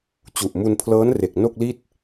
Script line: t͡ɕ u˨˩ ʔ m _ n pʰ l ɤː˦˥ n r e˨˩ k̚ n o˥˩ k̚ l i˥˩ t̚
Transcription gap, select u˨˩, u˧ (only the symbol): u˧